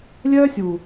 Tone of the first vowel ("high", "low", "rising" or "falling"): high